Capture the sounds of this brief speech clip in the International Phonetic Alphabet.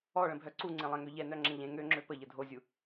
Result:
ɔ ɭ ə̃ bʱ œ ǀ u ŋ͡ǀ ẽ lˠ ɛ̃ ŋ ø ʎ ɛ n œ ŋ͡ǁ ɛ̃ ʎ ẽ ŋ ø ŋ͡ǁ ø p ə ʎ ə dʱ o zʲ u

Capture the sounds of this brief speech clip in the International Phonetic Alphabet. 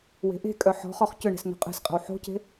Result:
w e̤ ʔ e̤ kʼ œ ħ ɔ̤ χ ɔ χ c ʏ ɳ ɛ̤ s n o̤ qʼ ɛ̤ s qʼ ə̤ w ħ o̤ c e̤

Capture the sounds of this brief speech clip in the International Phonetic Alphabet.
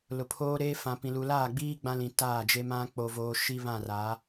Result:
l ʊ˨ pʰ oː˦ ɾ eː˦ f ã˨ p ĩ˨ l u˨ l aː˦˨ ɡ͡b iː˦ ɡ͡b ã˦ l ĩ˨ t aː˦˨ d͡ʒ e˦ m ã˦ k͡p o˨ v oː˨ ʃ i˦ β ã˦˨ r a˨˦

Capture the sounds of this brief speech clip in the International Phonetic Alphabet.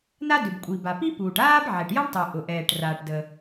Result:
n a˥ d ʏ˩ b kʷʼ i˩ b a˩ p i˥ p uː˩ ʈ aː˥ b ʕ ɛ˩ ʈ j ɐ˥ ɳ tˤ u˩ ʔ ʊ˩ ʔ ɛː˩ ʈ r aː˩ ʈ d ə˩

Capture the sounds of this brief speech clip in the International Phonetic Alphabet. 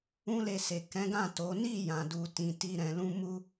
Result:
ũ˦ l e˧ s e˨ k ɛ̃˨˦ ɡ ã˦˨ t o˨˦ n i˦˨ j ã˨ d u˨ t ĩ˨ t i˧ ɾ ɛ̃˨ l ũ˧ m u˧

